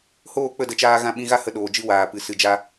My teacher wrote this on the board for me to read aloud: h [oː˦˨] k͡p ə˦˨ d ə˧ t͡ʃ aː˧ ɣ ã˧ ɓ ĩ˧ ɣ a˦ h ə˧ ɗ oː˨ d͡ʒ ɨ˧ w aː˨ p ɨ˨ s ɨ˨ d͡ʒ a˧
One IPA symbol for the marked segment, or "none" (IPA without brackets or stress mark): oː˦˨